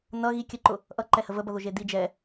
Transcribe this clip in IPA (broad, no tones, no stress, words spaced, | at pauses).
nʌ ɣi kʲəǃʊ | ʔʌ ǃɛhəvəbʌ ðoʒedi d͡ʒɛ